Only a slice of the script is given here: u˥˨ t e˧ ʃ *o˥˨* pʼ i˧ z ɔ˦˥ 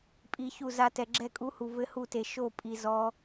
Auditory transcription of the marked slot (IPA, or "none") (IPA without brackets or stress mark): o˥˨